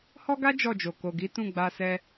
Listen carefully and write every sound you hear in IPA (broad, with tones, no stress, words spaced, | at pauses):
hɔ˦ɡa˦ d͡ʒɔ˦˨d͡ʒo˨ ko˨ɡi˨˦ tũ˦˨ɡ͡ba˧sɛ˧